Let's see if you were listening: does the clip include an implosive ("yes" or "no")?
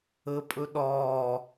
yes